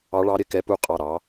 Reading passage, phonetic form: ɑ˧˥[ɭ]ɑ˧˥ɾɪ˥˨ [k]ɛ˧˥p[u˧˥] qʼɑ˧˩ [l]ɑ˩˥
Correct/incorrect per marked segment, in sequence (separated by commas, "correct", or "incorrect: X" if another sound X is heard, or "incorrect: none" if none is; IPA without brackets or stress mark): correct, correct, correct, incorrect: ɾ